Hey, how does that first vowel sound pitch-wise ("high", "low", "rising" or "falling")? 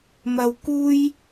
high